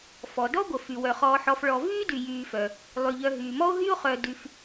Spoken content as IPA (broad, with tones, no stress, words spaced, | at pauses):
fɔ˩ dɔ˥ɡʷə˩ fy˩wœ˩χɔː˨ħɔ˨f ɭɔ˨ vyː˥dy˩ jyː˨fœ˩ | lˠy˩ʎœ˨ ɦyː˩mɔ˥o̯ ɦy˥o̯χœ˨dy˨f